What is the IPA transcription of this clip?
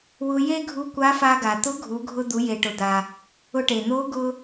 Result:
w ʊ˧ j e˥ ɡʱ u˧˥ kʷ a˧˥ f a˧ ɡ a˩ t̪ ʊ˧˥ ɡʱ u˩˧ ɡʱ ʊ˧ d̪ u˩˧ j e˩ ʈ ʊ˩ d̪ a˩ | ʊ˧ ʈ e˩ n̪ o˧˥ ɡ ʊ˥

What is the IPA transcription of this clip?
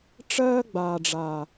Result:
ʈ͡ʂ ɜː˦ ɡ͡b aː˨ ɖ͡ʐ a˨

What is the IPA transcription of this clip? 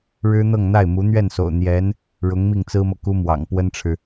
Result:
ɻ ɻ̩˥ n̪ ɤ˥˧ ŋ n̪ a˥˩ ɪ̯ m u˧˥ n̪ ɥ ɛ˥˩ n s o̰˨˩ ʊ̯ n̪ j ɛ˧˥ n | ɻ ʊ˧˥ ŋ m i˥˩ ŋ t͡s ɹ̩˥ m ɤ˨ k u˥ m w ɑ̰˨˩ ŋ p w ə˥ n ʈ͡ʂʰ ɻ̩˨

